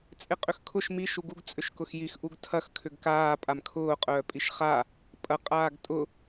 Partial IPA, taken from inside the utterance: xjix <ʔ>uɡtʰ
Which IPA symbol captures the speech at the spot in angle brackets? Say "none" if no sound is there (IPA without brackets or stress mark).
ʔ